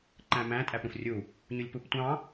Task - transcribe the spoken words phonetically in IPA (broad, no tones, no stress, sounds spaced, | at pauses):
ǃ æ̃ m æ̃ tʼ æ p ɾ ũ f rʲ u | ɲ u lʲ p u p tʷ ɑ̃